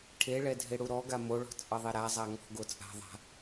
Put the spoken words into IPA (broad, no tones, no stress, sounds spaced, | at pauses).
ʈʰ e ɭ ɛ dʱ e ɽ u ɾ ɔ ɡ a m o ɭ ɔ̤ t͡sʼ ɤ ðˤ e ɾ a zˤ a ŋ ɔ̤ ɡ o t͡sʼ a̤ ðˤ a̤